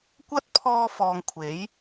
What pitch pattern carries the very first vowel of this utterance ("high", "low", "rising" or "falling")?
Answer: high